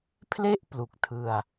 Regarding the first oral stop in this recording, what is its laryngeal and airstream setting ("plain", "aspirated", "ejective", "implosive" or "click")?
aspirated